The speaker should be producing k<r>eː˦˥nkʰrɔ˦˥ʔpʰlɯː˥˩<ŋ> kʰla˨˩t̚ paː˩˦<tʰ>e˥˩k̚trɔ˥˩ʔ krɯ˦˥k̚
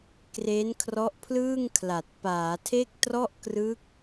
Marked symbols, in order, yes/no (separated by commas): yes, yes, yes